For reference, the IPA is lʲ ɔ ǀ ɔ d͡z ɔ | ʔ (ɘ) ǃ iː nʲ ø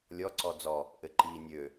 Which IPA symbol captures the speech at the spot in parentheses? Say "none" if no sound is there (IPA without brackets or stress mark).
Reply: ɘ